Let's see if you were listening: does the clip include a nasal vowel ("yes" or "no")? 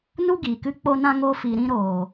yes